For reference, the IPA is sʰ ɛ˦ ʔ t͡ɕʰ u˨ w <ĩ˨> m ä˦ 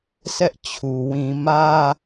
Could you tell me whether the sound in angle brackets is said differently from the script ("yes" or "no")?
no